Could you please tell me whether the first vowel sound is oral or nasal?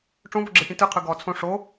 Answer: nasal